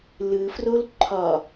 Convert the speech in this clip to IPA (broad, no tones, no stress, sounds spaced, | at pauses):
l ɯ f r o l ǃʰ ɒ